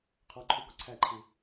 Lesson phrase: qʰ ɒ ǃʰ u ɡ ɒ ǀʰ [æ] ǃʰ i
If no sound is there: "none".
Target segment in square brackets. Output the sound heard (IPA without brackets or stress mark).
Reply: æ